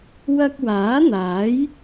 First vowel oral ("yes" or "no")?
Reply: yes